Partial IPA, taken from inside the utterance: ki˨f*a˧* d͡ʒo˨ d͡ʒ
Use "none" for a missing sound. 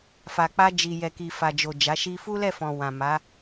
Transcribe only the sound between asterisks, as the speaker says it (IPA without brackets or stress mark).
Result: a˨